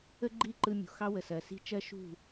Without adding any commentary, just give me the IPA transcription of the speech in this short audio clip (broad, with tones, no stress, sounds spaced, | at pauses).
ə˥ ɡ͡ǃ i˥˩ ǃ ɯ˧ mʲ ṳ˩ x ɑ˥ w ə˩ s ɜ˩ s i̤˥ t͡ʃ ɜ˥ ʃ ṳ˥˩